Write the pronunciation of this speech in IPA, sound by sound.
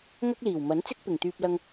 ŋ ɐ˥ k̚ l iː˨˩ w m ɐ˨˥ n t͡s ɪ˥ k̚ p ɪ˨˩ ŋ t̪ yː˧ p̚ l ɐ˧ ŋ

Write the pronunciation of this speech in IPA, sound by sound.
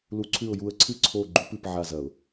l u˧˥ ǀʰ ʉ˦˨ ʊ̯ j u˦˨ ə̯ ǀʰ ɨ˥ ǀʰ o˦˨ ɡ͡ǃ u˧˥ p ɨ˦˨ p ʕ a˦˨ z ɐ˧˩˧ ʊ̯

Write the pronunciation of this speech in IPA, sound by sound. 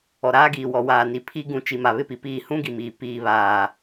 ɔ˨ ɾ aː˦ ɡ iː˨ w ɔ˨ w aː˨ n i˨ pʰ i˦ ɡ ũ˨ t͡ʃ i˨ m a˨ β ɪ˦ p i˨ p iː˦˨ h ũ˦ ɡ i˨ m iː˨ p iː˨ β aː˨

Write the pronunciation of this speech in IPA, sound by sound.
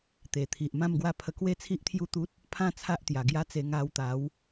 t̪ e˨˩ t̪ʰ i˨ ʔ m ã˥˧ m ɡ w a˦ pʰ ə˧ k w e˦ t͡sʰ i˦ ʔ t̪ʰ j u˦ t̪ u˦ t̚ | pʰ ã˥˧ t͡sʰ a˦ ʔ t̪ j a˨˩ ɡ j a˦ t͡s e˧ ŋ a˧ w t̪ a˨˦ w

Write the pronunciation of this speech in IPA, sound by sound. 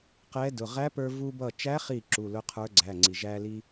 q ɛ˧˥ d ʊ˩˧˩ ʁ æ˧˥ p ə˞˧ v u˧ b ʌ˧˩ t͡ʃ æ˧˥ χ i˧˩ ǁ u˩˧˩ l ʊ˧˥ qʰ ə˞˧˥ ɡ͡ǀ æ˩˧˩ ŋ͡ǀ i˩ ʒ æ˧ l i˧

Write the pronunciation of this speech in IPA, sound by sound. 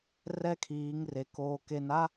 r ɛ˦ kʰ iː˨˦ ŋ r e˨ k oː˨ k e˨ n a˦

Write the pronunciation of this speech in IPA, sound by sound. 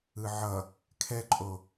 ɯ ʕ ʌ | kʰ ɛ ǃʼ o

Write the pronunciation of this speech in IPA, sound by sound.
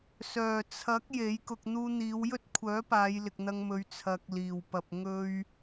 s œː˨˩ t͡sʰ ɐ˨˥ k̚ j e˨˥ j k ʊ˧ k̚ n̪ uː˧ n̪ iː˨˧ w j ɵ˥ t̚ kʷʰ œː˨˥ p aː˨˧ j l ɪ˨ k̚ n̪ ɐ˧ ŋ m ɵ˨˧ ɥ t͡sʰ ɐ˨ k̚ l iː˨˩ w p ɐ˨ p̚ ŋ ɵ˥ ɥ

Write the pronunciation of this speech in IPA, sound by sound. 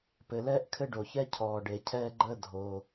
p ɘ˩ l ɛː˦ ʔ kʰ ɘ˦ ɖ o˩ ç ɛ˦ cʰ ɔː˩ ɖ e˩ cʰ ɛː˦ ɡ͡ǃ əː˦ dʱ o˩

